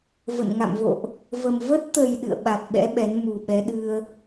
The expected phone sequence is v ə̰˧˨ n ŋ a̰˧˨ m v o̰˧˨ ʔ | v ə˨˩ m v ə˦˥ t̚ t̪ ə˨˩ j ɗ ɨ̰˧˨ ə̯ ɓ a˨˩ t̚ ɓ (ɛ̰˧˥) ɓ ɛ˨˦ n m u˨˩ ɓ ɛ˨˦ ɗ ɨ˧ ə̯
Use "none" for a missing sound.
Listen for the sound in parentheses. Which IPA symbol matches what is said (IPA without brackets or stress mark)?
ɛ̰˧˥